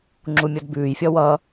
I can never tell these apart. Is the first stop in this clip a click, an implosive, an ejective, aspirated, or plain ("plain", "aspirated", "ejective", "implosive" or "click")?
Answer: click